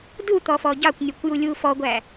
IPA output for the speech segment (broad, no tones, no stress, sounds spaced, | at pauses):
d u t̪ ɔ f ɔ ɟ ɑ kʷ nʲ ʊ kʷ j u lʲ u f ɔ ɡʷ æ